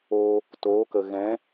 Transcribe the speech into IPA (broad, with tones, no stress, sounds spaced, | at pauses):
oː˧ | t oː˨˦ k ə˨ ɣ ɛ̃˨˦